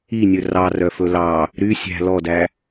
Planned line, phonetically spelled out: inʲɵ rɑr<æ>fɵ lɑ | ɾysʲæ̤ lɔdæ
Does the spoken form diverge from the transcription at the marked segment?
yes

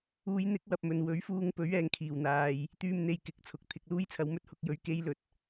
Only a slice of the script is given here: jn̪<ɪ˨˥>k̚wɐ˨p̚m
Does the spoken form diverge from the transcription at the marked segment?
no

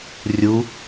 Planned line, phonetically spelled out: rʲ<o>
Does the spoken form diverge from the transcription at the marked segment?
yes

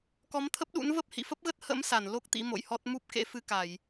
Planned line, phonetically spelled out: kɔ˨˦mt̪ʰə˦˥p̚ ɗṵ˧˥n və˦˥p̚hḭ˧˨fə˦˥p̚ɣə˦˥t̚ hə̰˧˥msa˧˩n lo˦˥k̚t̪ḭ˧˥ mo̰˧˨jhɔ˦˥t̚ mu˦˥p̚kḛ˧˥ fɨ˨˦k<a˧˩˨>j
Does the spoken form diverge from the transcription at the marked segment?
no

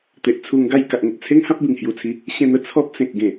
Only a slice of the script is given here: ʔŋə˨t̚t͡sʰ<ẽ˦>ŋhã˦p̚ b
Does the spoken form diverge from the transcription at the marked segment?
yes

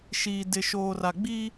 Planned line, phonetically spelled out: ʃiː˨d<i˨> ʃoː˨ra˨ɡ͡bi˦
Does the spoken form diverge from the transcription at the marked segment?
yes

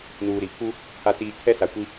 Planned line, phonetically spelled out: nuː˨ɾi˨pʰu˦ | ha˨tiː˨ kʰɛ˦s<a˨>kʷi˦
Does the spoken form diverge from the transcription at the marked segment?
no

